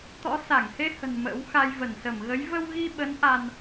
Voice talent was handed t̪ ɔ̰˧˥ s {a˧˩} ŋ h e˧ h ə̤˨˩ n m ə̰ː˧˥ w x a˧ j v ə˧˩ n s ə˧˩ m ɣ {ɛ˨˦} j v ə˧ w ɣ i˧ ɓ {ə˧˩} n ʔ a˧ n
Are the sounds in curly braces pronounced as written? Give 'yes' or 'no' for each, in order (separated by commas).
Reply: yes, no, no